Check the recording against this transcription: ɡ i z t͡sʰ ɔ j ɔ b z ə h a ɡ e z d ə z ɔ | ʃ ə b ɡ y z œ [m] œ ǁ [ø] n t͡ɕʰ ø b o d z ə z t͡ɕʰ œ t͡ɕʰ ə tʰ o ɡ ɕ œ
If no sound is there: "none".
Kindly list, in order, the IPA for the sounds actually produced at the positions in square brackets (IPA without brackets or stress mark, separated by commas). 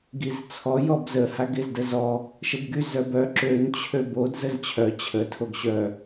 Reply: b, ø